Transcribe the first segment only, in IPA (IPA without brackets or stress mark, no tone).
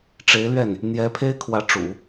ʈ͡ʂ